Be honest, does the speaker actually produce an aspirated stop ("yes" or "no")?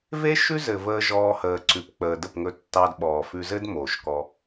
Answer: no